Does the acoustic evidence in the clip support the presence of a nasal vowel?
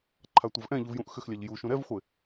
yes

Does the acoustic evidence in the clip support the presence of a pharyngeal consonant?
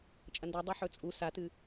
yes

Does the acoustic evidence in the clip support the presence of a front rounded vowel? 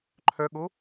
yes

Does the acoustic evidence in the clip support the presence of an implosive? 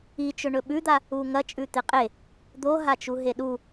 yes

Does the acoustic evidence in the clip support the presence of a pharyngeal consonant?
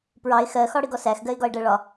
no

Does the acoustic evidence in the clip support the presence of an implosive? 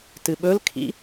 yes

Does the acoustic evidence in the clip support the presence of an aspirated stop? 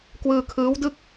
yes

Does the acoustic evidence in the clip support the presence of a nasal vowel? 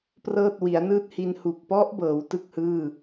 no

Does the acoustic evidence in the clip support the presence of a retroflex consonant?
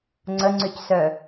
no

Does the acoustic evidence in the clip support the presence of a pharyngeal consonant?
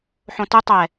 yes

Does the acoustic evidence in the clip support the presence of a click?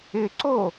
yes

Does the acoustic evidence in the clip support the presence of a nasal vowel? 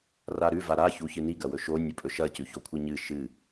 no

